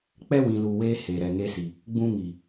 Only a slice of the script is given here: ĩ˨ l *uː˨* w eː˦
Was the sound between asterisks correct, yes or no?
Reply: yes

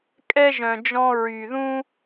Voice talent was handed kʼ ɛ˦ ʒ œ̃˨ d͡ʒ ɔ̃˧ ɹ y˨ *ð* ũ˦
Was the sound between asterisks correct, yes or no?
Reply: yes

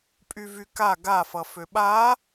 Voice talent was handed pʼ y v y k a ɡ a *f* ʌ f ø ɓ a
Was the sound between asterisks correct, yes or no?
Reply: yes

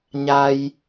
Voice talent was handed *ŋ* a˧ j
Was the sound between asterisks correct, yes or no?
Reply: no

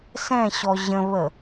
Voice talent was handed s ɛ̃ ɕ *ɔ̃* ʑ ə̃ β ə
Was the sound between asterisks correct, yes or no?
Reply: no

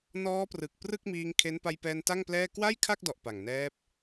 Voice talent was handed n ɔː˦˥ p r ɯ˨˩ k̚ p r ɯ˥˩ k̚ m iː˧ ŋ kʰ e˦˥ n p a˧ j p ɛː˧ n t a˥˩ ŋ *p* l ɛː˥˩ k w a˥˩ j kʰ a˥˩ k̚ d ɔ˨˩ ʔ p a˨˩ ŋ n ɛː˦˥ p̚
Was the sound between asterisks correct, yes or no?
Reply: yes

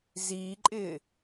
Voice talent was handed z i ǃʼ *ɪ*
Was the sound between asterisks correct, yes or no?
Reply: yes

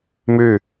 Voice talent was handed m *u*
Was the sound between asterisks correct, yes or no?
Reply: no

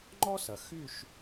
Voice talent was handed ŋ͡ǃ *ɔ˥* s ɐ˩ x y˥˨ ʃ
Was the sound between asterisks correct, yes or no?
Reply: yes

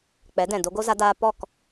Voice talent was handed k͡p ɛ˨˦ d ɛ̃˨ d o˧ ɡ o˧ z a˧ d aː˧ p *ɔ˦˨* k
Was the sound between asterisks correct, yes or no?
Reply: yes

